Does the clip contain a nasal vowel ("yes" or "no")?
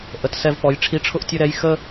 no